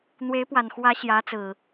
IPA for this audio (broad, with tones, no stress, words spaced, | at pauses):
n̪we˨˦ɪ̯pwa˨˩nxwä˨˦ ɕjä˨˦t͡sɹ̩˨˩